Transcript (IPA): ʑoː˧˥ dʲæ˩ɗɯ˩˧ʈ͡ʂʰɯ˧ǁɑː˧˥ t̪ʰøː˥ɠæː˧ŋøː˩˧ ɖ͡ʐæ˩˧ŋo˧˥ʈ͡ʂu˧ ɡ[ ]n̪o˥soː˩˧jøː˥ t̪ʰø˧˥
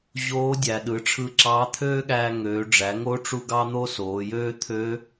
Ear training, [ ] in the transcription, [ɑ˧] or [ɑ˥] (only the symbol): ɑ˥